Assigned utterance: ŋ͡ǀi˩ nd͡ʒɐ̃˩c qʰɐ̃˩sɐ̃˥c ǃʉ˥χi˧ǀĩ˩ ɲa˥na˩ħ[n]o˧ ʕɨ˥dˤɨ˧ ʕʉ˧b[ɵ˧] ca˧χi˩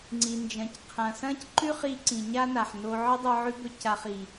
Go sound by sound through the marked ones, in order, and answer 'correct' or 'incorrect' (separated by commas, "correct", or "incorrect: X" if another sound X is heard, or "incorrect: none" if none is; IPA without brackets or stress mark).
correct, correct